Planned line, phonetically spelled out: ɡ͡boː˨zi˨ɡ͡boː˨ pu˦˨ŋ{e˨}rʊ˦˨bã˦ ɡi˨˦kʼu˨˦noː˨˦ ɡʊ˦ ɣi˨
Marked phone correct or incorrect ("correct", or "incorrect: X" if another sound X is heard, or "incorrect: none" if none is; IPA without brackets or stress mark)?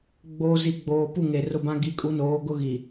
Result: correct